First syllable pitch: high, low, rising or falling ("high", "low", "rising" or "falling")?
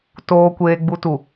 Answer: low